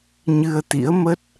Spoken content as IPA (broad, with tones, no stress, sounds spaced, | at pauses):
ɲ ɨ˧ ə̯ t̪ ḭ˧˥ ə̯ m ə˦˥ t̚